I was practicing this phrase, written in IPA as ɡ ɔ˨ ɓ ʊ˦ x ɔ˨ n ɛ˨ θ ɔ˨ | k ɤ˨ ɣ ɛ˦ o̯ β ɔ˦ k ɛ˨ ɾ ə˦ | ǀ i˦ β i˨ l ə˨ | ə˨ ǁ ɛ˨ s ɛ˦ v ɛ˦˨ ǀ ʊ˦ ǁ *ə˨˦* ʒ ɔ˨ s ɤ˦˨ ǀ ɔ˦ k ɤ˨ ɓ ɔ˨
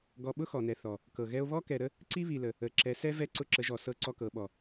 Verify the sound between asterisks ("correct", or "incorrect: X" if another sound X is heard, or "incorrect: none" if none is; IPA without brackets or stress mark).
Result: correct